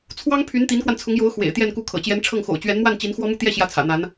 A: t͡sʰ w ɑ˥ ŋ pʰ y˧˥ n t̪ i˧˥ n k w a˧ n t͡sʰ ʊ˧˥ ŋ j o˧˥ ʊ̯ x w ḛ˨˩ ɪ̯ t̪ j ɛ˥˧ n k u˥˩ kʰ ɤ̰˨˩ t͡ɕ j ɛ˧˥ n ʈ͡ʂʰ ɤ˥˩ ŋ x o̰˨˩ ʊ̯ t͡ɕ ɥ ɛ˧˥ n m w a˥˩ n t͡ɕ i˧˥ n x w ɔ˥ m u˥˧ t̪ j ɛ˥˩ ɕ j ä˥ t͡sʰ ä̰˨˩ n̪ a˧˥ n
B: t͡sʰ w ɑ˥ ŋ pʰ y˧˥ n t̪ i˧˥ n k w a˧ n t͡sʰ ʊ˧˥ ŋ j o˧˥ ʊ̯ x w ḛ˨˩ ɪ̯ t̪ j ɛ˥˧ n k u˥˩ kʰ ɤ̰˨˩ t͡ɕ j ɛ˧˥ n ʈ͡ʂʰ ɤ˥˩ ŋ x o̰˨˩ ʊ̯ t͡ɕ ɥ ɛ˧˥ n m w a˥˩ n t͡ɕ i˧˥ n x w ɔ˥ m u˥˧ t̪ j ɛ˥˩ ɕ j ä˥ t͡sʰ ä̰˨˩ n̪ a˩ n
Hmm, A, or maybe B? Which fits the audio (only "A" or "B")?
A